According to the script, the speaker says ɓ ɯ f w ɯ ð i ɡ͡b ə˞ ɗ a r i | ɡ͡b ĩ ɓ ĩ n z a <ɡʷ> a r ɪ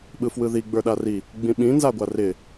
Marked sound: correct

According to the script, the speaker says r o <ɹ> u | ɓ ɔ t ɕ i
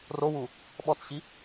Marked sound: incorrect: w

